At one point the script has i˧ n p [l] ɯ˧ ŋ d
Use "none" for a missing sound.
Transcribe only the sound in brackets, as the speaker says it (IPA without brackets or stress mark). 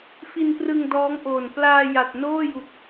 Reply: r